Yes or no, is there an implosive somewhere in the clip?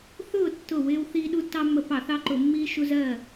yes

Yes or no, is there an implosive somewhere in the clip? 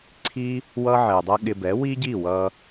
yes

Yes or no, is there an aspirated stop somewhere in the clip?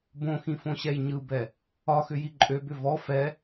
no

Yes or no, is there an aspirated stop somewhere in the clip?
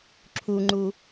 yes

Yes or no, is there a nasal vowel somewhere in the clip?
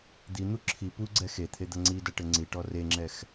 no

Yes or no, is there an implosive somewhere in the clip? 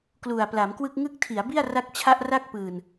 no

